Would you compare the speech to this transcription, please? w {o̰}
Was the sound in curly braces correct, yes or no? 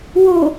no